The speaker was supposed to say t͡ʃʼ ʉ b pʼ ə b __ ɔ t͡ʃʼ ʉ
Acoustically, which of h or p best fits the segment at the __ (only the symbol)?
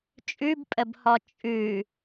h